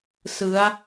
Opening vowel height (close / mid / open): close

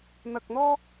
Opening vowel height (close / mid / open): open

